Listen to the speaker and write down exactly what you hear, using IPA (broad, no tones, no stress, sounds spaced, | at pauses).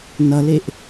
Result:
n ʌ l e ʔ